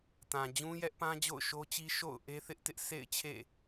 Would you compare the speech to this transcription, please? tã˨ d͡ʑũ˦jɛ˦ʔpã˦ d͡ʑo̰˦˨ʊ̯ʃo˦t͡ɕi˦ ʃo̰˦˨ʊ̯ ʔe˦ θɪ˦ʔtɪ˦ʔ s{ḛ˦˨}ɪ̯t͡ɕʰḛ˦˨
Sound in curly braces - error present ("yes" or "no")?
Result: no